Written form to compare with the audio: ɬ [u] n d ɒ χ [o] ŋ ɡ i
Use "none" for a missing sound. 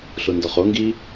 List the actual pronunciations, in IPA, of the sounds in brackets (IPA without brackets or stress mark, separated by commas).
u, o